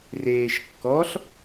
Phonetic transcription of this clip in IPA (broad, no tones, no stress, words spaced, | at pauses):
reːʃkːɔɬ